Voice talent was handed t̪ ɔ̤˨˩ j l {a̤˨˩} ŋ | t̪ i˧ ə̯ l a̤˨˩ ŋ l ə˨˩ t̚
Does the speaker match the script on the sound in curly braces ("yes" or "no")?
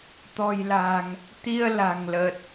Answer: yes